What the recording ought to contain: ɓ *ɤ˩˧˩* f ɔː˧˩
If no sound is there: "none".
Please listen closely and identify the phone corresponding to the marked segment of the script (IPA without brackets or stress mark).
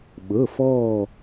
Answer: ɤ˩˧˩